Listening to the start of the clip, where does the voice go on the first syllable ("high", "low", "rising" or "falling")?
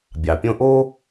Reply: low